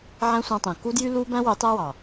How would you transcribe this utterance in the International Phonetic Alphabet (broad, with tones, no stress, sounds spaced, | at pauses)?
ʕ æ̃˦ sʷ ɑ̃˧ tˤ ẽ˨ k u˦ d j y˦ l u˧ b æ̃˦ w ø˨˦ tˤ æ˦ w ɑ˨